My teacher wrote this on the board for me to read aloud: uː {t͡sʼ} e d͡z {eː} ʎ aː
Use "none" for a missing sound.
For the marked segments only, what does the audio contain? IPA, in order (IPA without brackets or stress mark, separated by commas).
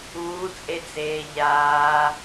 t͡sʼ, eː